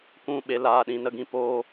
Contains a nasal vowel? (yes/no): yes